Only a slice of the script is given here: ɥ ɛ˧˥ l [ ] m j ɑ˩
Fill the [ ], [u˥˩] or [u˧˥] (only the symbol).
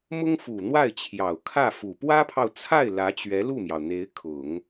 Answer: u˥˩